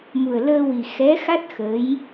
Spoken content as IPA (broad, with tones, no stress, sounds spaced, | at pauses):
m u˨˩ ə̯ l əː˧ w i˨˩ x ɛ˧˥ x a˦˥ t̚ x ə˧˥ j